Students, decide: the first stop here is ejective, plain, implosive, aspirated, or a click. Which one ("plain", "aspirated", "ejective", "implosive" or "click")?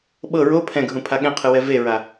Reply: implosive